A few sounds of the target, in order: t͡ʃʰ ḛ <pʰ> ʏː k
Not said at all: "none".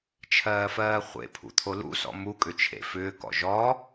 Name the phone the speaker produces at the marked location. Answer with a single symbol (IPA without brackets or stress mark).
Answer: f